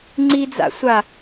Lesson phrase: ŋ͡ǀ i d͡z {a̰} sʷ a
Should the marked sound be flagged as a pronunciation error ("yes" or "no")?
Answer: no